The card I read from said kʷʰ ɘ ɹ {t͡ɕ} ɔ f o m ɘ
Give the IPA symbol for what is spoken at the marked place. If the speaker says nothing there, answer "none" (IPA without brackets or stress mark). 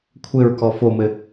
k